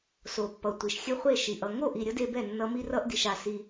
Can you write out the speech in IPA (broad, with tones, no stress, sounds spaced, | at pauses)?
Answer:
s o˨ pː ʌ˨ tʷ i˨ ʃ xʲ ɛ˦ χʷ e˦˨ ʃ i˨ ʔ ʌ˨ ŋ o˦˨ ʔ i˨ ɾʲ ʌ˧ d e˧ b ɛ˦˨ nː ʌ˧ m i˧ r ʌ˧ ʔ d i˨ ʃ a˨ s i˦